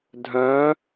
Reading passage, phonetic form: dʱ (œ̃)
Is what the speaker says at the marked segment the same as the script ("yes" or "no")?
yes